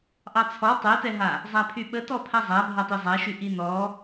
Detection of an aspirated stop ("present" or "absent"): present